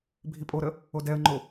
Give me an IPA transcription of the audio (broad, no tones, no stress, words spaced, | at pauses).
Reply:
bʱipʼoɾə | odɛə̯ŋ͡ǃo